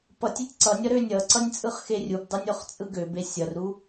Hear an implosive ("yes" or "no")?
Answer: no